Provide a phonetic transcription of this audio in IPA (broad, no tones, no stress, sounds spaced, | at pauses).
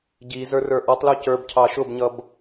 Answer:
ɟ i z ə˞ r ə˞ ʔ ɔ tˤ l u c ə˞ b cʰ ɑ ʃ ʊ b ɲ ʌ b